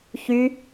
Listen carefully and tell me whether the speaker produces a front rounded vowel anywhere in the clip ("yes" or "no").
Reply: yes